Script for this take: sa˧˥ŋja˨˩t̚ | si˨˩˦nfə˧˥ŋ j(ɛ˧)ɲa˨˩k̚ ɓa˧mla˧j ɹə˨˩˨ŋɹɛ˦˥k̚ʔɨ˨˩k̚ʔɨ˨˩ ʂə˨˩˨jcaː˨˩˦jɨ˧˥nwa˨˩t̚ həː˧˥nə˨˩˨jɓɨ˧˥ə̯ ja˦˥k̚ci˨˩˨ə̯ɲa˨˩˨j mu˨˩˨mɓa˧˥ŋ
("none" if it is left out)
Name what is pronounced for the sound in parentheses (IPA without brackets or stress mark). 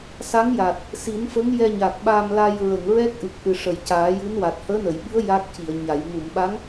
ɛ˧